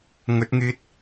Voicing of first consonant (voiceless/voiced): voiced